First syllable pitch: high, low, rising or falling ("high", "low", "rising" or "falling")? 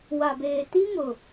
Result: low